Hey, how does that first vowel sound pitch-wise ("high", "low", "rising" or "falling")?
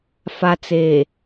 low